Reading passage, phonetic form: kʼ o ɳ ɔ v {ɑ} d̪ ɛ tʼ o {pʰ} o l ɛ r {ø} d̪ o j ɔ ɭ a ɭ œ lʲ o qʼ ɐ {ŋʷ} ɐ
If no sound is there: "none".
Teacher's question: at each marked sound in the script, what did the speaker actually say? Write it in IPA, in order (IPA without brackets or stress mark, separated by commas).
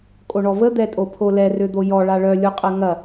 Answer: ə, pʰ, ø, ŋ